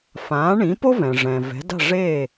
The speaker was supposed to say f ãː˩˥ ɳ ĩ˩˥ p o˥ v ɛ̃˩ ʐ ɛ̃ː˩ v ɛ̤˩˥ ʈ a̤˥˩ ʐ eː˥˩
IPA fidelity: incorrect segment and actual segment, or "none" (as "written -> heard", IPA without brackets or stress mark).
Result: ʈ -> d